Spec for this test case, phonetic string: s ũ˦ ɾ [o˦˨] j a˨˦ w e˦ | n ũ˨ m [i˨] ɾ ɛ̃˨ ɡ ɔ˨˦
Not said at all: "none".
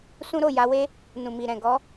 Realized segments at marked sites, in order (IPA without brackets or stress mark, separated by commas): o˦˨, i˨